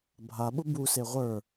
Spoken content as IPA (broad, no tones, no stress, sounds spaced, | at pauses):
bʱ a ɓ ʊ b u s e ʁʷ ə˞